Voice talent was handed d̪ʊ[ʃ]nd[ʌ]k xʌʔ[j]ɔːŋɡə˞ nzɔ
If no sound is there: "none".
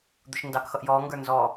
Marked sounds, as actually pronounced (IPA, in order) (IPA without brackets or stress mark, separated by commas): ʃ, ɑ, j